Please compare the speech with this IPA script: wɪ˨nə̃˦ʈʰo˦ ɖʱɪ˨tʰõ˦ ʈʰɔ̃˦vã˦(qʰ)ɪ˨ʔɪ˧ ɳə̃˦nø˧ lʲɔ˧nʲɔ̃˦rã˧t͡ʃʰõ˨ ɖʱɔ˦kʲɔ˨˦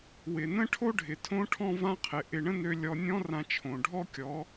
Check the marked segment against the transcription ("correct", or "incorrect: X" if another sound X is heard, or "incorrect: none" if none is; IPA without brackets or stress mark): correct